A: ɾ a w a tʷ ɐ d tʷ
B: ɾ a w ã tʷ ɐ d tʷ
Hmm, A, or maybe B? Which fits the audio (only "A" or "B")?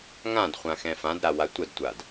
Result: A